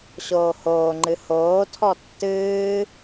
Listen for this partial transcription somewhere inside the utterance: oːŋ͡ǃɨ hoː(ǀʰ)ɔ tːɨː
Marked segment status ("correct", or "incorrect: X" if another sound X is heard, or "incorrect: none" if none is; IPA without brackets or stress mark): incorrect: tʰ